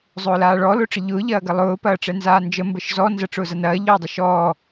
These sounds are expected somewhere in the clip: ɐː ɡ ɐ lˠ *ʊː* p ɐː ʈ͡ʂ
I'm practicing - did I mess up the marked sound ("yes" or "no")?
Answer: no